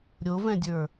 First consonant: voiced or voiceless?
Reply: voiced